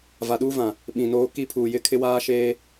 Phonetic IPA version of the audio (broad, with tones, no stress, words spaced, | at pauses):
va˨ɗuː˦vã˨ | ɓĩ˨noː˦ ki˦pʰuː˨jɪ˦kʰɪ˦ waː˦ʃeː˦